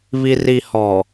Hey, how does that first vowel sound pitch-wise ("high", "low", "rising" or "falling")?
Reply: low